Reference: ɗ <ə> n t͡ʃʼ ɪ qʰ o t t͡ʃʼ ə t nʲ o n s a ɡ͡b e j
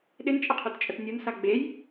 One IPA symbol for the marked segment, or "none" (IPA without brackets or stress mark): ɪ